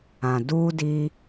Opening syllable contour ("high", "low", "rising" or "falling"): low